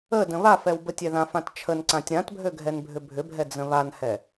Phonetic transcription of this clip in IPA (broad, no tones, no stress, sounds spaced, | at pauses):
ə d ə̃ β a f ɛ w b ə tʲ ɛ ð ã f ã t t͡ʃʰ ə n ǀ ã tʲ ɾ ã t bʱ ø ɡʱ ɛ n bʱ ʏ bʱ ʏ bʱ ɛ d͡z ə̃ β a n h ɛ